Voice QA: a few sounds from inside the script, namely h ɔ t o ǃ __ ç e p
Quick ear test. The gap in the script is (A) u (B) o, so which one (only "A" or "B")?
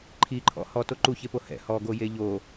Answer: A